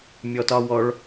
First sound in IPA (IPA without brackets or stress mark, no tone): mʲ